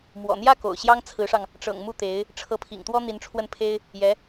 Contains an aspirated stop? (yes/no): yes